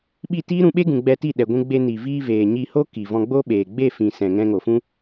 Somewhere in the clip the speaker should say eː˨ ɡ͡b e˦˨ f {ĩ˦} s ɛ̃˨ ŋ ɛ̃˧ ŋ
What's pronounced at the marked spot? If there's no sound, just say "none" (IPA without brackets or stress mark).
ĩ˨